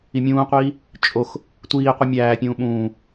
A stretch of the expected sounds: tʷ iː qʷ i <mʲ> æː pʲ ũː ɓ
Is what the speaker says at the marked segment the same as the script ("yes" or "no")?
yes